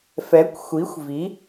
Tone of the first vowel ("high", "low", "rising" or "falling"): rising